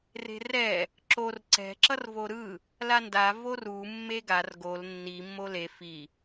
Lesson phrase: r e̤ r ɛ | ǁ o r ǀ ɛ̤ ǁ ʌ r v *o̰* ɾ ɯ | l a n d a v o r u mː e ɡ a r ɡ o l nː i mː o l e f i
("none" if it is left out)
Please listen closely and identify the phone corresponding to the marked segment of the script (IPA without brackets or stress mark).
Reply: o